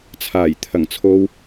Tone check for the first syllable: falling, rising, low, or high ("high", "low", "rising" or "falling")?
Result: low